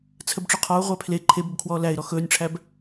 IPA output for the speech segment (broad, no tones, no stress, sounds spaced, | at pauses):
t͡sʰ ə b ʈ͡ʂ ɵ qʰ ɔ ʊ̯ ʁʷ æ pʰ l e ǃʰ e b ɵ b kʰ w ɔː l æ ɪ̯ ɾ ɔ x ɵː nʲ ʈ͡ʂʰ æ b